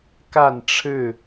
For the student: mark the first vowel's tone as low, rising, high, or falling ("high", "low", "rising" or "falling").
falling